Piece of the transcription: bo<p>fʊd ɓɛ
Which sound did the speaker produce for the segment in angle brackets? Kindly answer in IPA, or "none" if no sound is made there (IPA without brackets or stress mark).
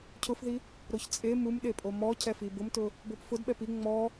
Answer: p